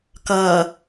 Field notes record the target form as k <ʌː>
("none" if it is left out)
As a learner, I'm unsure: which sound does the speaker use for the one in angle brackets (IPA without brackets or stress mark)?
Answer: ʌː